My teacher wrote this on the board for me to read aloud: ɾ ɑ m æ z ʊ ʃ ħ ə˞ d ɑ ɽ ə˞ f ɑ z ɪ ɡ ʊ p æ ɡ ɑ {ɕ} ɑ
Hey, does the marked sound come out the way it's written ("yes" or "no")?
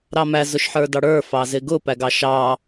no